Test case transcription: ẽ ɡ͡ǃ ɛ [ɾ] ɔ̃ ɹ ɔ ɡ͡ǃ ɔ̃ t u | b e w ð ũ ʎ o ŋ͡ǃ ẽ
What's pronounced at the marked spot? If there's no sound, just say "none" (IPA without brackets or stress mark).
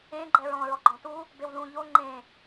ɹ